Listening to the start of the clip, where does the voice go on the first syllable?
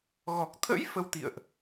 low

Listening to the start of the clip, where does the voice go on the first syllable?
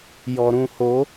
low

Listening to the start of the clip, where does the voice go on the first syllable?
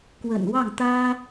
low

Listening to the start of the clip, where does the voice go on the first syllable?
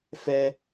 high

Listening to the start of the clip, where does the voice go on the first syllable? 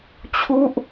falling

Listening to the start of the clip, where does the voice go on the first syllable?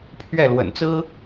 falling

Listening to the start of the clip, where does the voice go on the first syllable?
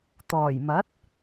low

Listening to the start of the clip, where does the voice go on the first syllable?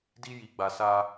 high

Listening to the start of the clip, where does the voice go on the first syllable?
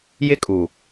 high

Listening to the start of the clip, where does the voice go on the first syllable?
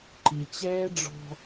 low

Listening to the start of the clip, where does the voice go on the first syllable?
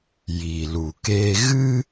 low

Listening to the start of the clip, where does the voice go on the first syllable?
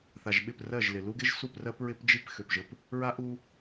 low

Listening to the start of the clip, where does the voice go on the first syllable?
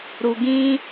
low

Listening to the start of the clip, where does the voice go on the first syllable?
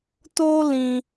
high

